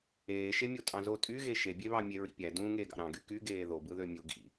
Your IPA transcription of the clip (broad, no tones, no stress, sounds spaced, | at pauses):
eː ʃ e mʲ o tʼ ɑ̃ z o tʼ y ɣ e ʃ e bʲ e β ɑ mʲ e ɹ ḭ pʲ æ d ũː ŋ eː ɡ ɑ̰ ɾ ɑ̃ ɡ y k y ɡ eː ð o b ɯ ð ø mʲ u ɡ ḭ